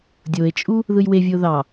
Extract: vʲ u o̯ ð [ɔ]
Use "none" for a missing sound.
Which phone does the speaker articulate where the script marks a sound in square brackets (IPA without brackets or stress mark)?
ɑ